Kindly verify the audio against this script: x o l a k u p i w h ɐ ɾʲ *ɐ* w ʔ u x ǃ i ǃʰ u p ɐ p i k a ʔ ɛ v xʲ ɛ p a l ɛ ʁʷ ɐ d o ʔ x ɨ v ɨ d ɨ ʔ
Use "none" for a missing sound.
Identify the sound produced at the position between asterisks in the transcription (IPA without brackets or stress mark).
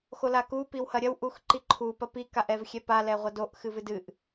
ɐ